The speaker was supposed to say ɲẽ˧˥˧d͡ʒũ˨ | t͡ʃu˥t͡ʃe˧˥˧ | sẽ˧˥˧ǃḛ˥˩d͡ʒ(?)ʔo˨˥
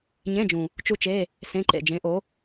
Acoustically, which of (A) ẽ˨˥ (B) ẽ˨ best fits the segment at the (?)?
A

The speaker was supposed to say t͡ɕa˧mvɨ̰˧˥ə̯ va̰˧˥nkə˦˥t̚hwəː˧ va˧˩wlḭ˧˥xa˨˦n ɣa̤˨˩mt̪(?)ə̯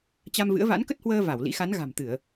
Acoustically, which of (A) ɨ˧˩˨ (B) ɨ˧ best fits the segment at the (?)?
A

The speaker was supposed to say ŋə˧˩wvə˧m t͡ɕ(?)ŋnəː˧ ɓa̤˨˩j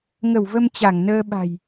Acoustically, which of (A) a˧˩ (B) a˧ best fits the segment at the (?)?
A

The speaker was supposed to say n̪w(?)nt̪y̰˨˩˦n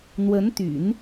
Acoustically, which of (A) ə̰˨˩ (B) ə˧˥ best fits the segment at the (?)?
B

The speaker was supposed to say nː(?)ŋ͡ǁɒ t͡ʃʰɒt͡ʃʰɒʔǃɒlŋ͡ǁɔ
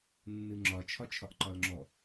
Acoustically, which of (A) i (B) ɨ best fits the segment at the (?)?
B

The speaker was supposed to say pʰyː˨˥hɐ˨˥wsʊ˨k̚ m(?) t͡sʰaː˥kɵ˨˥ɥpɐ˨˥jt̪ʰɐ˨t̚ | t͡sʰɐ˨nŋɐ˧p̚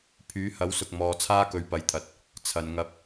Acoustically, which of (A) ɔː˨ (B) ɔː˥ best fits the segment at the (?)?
A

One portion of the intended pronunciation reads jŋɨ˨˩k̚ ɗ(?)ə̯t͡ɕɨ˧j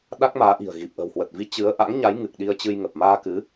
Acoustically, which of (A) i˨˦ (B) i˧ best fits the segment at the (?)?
B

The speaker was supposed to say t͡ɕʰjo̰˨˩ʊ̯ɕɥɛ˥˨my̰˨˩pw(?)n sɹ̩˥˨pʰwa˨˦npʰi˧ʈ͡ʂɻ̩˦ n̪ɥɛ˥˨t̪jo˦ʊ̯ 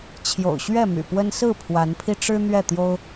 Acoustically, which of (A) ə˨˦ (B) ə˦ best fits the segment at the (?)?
B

